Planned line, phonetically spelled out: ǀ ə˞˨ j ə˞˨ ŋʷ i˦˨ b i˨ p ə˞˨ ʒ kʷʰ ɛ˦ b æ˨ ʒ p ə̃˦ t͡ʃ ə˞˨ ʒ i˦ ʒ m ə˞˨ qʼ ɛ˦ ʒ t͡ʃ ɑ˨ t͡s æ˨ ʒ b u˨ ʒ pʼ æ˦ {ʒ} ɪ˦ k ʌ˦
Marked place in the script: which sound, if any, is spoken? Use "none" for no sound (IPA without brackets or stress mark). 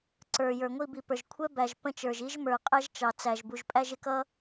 ʒ